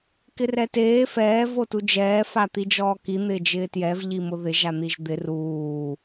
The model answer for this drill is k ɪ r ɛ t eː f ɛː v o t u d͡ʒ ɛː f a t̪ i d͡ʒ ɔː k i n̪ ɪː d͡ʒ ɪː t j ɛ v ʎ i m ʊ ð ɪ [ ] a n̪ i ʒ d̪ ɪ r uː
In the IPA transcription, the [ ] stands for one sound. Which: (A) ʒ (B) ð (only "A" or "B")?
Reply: A